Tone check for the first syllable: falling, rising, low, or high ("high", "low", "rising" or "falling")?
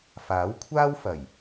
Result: rising